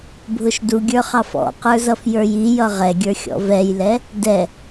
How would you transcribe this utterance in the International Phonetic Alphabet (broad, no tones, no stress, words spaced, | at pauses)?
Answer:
bʱʊʃduɡʲə˞χɑf ɔ̰qə˞zʌf jə˞jijʌ ʁɛɡʲə˞ xʲɔ̰vɛjlɛ | dɛ